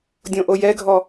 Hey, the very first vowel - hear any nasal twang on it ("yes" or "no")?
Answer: yes